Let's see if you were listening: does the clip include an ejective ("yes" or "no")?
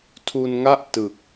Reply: no